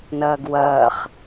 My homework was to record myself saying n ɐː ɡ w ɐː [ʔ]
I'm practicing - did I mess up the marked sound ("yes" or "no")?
yes